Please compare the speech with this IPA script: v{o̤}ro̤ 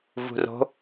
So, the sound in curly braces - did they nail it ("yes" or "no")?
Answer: no